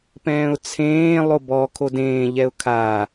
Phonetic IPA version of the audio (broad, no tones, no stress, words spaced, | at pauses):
pɛ̃ːʊ̯t͡sʰẽː lˠobɔ kʰodẽː ʎɛʊ̯kʰa